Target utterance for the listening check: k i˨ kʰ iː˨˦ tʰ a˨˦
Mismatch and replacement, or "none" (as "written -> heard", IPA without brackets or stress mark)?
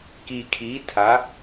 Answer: none